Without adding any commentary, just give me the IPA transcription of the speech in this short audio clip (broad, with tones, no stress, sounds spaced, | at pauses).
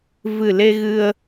v ɨ˨˩ l e˧ ɣ ɨ˧ ə̯